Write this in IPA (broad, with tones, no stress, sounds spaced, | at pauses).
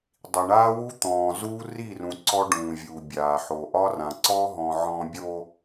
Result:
dˤ i˨ ɳ aː˦ w u˦ t̪ ɔ̃ː˨ z uː˦ r i˦˨ r ũ˨ ǀ ɔ˦ ɖ ũː˨ vʲ u˨ bʲ aː˨ ħ o˨ ʔ ɒ˦ r ã˨ ǀ ɔ˦ ɦ ɔ̃˨ ʕ ɔ̃˨ bʲ o˨